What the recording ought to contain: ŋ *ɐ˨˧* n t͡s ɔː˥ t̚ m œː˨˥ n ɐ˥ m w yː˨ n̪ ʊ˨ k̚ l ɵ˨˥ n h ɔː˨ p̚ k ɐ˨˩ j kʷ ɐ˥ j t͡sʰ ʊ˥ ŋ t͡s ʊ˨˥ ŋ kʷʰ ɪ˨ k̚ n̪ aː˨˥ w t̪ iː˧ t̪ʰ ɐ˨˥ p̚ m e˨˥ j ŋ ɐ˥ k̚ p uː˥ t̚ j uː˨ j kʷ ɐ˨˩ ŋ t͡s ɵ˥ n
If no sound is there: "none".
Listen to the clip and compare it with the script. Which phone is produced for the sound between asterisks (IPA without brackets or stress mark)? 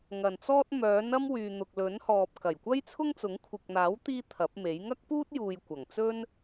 ɐ˨˩